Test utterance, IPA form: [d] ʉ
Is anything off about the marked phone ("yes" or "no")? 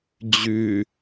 yes